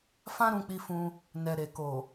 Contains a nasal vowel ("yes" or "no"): yes